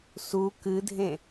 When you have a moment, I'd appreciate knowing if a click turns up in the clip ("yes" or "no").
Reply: no